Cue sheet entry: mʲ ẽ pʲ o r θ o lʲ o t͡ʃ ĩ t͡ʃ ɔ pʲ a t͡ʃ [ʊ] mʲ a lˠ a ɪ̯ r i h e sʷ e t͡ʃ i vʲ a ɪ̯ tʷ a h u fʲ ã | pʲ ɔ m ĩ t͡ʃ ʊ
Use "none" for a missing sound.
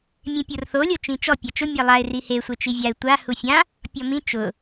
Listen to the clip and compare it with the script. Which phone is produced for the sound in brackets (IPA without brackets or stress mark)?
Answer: ʊ